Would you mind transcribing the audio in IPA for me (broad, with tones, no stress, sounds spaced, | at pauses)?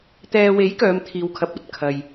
t̪ ɛː˨ w e˨˥ j k œː˨˧ m t̪ʰ iː˨ w kʰ ɐ˨˥ p̚ ɐ˨ t̚ kʰ ɐ˨ j